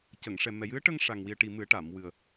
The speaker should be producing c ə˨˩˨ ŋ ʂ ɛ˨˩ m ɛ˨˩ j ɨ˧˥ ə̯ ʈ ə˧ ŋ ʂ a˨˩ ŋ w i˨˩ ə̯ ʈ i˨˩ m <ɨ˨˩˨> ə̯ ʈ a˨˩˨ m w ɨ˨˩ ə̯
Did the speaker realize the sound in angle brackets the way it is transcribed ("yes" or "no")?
no